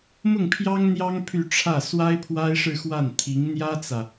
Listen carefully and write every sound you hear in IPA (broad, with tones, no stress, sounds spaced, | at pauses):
m ʊ˥˩ ŋ pʰ j ɑ˥ ŋ n̪ j ɑ˥ ŋ pʰ y˥˧ ʈ͡ʂʰ ä˥˩ s w a˥ ɪ̯ pʰ w a˥ ɪ̯ ʂ ɻ̩˥˧ x w a˥˩ n t̪ʰ i˧˥ ŋ n̪ j ä˥ t͡s ä˨